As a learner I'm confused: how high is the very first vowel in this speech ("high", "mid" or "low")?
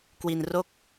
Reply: high